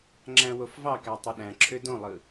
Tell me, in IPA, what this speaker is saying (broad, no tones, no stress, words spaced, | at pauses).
ŋ͡ǁæ̃wofvɑkæ tˤøɗæ̃ǁʰø dõlˠɯ